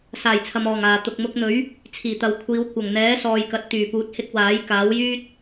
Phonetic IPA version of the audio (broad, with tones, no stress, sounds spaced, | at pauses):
s aː˨˩ j t͡sʰ ɐ˨ m ɔː˨˩ ŋ aː˨˩ t̪ ʊ˨ k̚ m ʊ˧ k̚ n̪ ɵ˨˥ ɥ | t͡sʰ iː˨˩ t̪ ɐ˨ w kʷʰ iː˨˧ w kʷ ɐ˨˩ ŋ n̪ ɛː˨˥ s ɔː˨ j k ɐ˨ t̚ t̪ yː˨˩ p uː˨˥ t̚ h ɪ˧ k̚ w aː˨˥ j k aː˨˥ w j yː˥ t̚